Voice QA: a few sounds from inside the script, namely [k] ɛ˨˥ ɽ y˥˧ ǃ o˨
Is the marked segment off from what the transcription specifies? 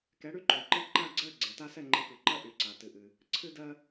no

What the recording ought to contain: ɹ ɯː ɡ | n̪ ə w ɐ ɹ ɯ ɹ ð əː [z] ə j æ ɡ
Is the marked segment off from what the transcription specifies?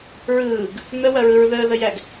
yes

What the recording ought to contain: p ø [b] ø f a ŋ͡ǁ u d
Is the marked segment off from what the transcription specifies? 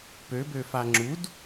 no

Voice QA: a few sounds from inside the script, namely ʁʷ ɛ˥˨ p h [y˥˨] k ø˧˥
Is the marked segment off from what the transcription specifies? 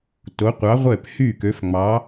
no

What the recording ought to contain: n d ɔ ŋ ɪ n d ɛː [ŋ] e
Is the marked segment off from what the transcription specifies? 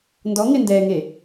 no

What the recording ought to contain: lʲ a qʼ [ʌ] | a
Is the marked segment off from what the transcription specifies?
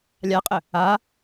yes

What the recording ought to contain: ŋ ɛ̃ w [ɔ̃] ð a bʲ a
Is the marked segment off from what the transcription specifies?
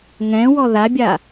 yes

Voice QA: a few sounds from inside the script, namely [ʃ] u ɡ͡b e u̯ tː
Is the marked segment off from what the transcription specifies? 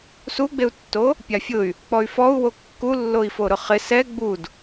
yes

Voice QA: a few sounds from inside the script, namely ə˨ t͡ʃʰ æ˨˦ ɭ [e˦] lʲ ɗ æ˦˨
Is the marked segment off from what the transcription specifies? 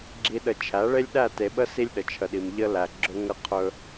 no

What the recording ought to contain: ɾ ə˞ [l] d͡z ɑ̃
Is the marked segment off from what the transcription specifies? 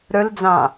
no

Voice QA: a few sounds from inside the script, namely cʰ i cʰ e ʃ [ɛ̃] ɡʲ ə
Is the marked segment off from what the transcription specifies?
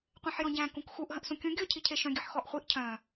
yes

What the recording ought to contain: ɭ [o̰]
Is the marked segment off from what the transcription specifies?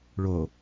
yes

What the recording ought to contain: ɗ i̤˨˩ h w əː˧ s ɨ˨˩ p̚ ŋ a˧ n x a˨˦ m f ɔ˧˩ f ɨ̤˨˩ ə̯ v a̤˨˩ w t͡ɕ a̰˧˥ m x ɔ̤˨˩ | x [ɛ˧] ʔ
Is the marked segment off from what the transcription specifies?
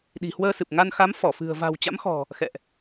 yes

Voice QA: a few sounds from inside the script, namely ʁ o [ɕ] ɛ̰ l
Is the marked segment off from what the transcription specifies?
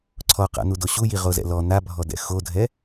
yes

